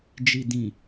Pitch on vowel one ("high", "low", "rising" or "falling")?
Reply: low